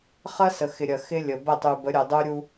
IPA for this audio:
χ ɐ˦ s ə˨ x ɪ˨ ɾʲ ɐ˨ x ɪ˦ lʲ ə˨ b ə˦˨ tˤ y˨ b ə˨˦ ɾʲ ə˨ dˤ u˦ ɾʲ u˦

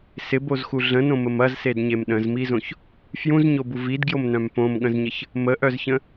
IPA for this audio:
s ɪ b o z x u ɮ ə̃ n õ m ə m ɐ z s e d ɲ e m ɗ ə̃ z m i z õ ç | f j ũ z ɲ o b u v i d ɡ j o m n œ̃ m p õ m ɠ ə̃ z ɲ ə ç | m ə ʔ œ z ç ə̃

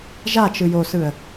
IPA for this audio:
ʒ a t͡ʃ ɯ j o s ɯ ə̯

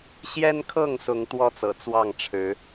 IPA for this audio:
ɕ j ɛ˦ n kʰ ɤ˥˨ ŋ s ʊ˨˦ ŋ t̪ w ɔ˦ t͡s ɤ̰˨˩ t͡s w ɑ˥˨ ŋ ʈ͡ʂʰ ɻ̩˨˦

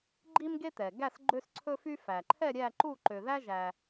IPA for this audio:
ɡ͡ǃ i˦ m ɡ e˦ t̪ ɛ˩ ɡ æ˦˨ s ɡ͡ǃ ø˦ s ǀʰ ɵ˦ f y˦ f æ˩ ǃʰ ɛ˦˨ ɾʲ æ˦˨ ǃ u˦˨ ǃ ø˩ ð æ˦ ʒ æ˩

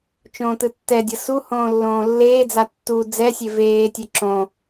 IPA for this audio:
t͡ʃ õː t ɯ tː ɛ dʲ ʌ s u h õː lː õː lː eː d͡z a tː u d͡z ɛ sʲ e v eː tʲ ɛ ǁ õ

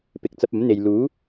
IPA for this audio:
p ɪ˨ k̚ t͡s ɐ˧ p̚ ɐ˨˥ m n̪ e˨ j l uː˨˥

